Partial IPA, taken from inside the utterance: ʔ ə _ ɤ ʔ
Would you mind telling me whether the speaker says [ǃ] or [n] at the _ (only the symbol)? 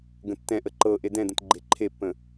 ǃ